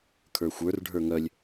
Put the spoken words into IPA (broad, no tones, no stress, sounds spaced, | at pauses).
kʰ ə˞ xʷ ə˞ r ɖʱ ə˞ ŋ œ lʲ